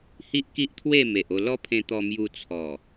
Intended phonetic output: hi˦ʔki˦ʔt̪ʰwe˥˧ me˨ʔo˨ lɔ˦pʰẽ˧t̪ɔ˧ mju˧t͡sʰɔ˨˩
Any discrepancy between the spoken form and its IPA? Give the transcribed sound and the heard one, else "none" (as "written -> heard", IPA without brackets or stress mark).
o˨ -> o˧